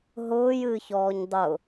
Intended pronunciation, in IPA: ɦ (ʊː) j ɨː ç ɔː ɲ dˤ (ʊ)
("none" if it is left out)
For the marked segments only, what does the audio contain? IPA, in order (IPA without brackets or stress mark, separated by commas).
ʊː, ʊ